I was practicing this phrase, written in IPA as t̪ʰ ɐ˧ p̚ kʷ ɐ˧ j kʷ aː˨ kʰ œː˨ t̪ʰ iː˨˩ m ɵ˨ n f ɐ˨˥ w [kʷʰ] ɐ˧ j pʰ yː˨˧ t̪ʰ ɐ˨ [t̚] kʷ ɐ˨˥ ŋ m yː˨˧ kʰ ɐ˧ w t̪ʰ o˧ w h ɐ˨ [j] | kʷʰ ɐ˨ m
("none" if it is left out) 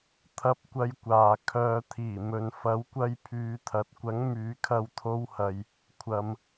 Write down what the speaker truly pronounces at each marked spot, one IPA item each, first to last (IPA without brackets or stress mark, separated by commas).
kʷ, t̚, j